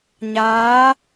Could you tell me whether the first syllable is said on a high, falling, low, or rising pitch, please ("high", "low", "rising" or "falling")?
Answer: rising